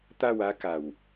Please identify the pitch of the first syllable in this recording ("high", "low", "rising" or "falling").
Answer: falling